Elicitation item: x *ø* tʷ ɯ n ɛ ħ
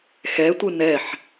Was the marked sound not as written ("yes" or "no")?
yes